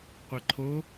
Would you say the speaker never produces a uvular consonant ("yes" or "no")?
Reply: no